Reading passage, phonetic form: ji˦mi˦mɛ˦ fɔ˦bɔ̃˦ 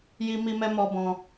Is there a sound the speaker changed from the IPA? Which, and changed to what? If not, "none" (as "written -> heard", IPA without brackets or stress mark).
f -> m